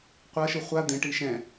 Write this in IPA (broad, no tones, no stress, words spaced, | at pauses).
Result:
qʷʌʃɯ χʷa d̪ẽʈi ʃɛ̃